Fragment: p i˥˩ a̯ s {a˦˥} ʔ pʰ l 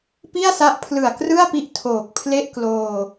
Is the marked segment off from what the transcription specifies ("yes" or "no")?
no